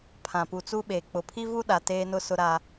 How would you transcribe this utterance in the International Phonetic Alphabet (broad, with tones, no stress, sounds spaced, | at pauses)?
pʰ ã˨ p u˨ t͡s u˦ ɓ eː˨ k͡p ʊ˨ pʰ i˦ v u˦ ɗ a˨ t eː˦ n ʊ˦ s ʊ˦ ɾ a˦